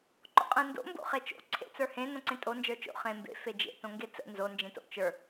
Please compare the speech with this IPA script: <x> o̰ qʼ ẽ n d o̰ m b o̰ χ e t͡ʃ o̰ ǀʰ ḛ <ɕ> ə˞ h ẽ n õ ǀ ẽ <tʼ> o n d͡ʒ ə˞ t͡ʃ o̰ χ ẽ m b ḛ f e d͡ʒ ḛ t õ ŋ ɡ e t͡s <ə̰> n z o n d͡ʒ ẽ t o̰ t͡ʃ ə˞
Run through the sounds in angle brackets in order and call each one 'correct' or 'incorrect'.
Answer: incorrect, incorrect, correct, correct

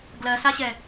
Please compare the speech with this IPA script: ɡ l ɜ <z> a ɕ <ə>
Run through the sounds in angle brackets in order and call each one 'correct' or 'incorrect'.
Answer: incorrect, incorrect

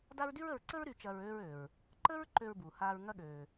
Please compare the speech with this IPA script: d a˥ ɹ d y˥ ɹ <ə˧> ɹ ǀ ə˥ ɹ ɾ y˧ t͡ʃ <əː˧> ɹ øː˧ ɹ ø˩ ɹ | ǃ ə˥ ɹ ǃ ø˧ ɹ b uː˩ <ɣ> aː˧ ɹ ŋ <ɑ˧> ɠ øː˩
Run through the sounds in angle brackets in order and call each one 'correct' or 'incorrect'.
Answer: correct, incorrect, incorrect, incorrect

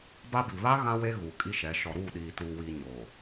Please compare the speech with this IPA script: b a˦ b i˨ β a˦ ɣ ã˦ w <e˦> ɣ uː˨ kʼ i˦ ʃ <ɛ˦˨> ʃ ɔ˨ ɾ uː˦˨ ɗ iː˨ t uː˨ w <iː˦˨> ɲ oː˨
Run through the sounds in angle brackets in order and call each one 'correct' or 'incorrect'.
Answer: correct, incorrect, incorrect

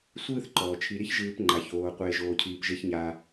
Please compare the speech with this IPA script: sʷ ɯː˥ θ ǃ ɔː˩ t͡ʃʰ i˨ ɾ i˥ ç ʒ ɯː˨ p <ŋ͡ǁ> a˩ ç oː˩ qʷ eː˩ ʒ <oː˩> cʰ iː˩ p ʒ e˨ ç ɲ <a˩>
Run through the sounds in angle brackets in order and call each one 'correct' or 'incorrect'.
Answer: incorrect, correct, correct

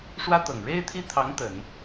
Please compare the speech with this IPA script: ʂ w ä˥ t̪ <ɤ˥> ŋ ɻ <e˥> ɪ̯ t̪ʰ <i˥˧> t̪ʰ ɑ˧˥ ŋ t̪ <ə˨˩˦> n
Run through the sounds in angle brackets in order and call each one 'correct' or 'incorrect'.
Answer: incorrect, correct, incorrect, correct

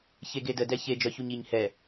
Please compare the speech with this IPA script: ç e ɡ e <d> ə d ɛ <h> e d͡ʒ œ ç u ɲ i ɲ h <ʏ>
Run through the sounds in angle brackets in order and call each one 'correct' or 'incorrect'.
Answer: correct, incorrect, incorrect

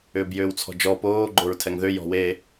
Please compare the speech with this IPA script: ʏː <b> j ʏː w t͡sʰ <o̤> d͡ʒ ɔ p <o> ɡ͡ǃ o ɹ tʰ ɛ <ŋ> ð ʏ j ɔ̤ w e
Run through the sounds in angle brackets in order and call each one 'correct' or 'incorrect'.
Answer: correct, incorrect, incorrect, correct

